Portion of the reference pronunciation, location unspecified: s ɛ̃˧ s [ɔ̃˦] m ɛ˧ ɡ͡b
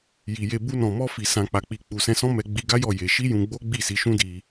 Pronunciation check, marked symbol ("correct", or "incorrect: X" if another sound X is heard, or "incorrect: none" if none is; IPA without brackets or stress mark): correct